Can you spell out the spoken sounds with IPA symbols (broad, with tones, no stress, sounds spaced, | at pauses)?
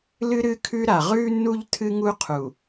l ɨ˦ ɾ ɨ˦ kʰ ʉ˦ ɾ a˨ ʁ ʉː˦ nː u˦ ʎ tʰ ɨ˦ ŋ u˦ qʰ u˨